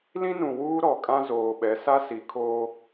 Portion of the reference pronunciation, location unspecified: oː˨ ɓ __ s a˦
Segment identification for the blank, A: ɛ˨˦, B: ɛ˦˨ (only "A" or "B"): A